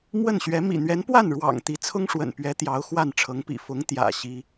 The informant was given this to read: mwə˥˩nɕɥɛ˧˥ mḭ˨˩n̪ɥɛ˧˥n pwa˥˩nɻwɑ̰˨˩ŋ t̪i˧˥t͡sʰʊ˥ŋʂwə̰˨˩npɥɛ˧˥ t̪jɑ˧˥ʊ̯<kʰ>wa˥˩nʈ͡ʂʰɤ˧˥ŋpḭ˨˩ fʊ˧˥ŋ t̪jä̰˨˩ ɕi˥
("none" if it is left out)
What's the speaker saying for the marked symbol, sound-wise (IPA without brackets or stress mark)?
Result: x